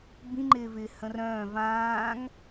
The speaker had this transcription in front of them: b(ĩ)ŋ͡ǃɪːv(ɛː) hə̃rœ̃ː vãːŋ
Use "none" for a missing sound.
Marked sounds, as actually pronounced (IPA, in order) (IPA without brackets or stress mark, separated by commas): ĩ, ɪː